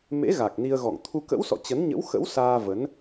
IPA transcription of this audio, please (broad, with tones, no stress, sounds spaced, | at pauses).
m ḛ˧˥ ɣ a˨˩ k̚ n i˧ ə̯ ɣ ɔ̰˧˨ ŋ t̪ʰ u˧ k ə̰˧˥ w s ɔ̰˧˨ t͡ɕ ə˨˦ n ɲ ə̰˧˥ w x ə̰˧˥ w s aː˧ v ə˨˦ n